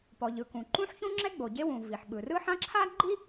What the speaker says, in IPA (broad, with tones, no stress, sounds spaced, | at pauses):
p ɔ˩ ʎ ɯ˩ k ũ˩ ǃ ũ˥ ħ ç ũ˥ ŋ͡ǁ ɛ˥ ɡ͡b o˩ ɟ e˥ w ũ˩ v i˩ ħ ɓ ɯ˩ r ɯ˥ ħ ã˥ ǁʰ a˥ ɡ͡ǃ i˥